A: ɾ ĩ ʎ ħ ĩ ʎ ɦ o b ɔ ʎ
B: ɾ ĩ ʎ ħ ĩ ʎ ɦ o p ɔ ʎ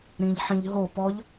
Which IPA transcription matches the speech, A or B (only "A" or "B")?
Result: B